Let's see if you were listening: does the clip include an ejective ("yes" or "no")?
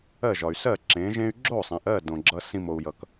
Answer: no